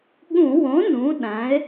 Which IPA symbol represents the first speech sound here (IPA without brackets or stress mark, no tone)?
ɠ